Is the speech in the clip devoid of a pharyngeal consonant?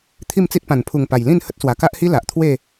yes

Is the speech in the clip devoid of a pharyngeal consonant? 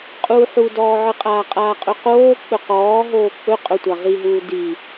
no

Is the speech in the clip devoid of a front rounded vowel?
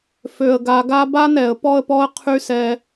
no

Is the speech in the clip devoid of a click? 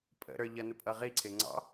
no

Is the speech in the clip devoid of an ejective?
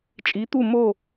no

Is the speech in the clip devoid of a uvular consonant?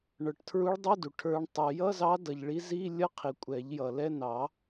no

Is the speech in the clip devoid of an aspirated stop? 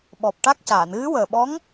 yes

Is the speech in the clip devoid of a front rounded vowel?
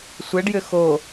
no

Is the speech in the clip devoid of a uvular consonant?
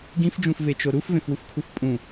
yes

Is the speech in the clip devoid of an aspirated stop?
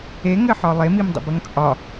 yes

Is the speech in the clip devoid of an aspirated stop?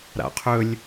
no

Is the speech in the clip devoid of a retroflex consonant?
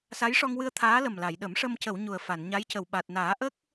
no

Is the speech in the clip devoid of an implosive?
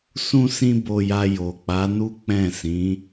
yes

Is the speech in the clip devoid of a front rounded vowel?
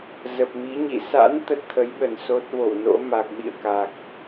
yes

